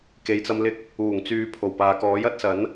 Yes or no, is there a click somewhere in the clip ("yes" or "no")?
no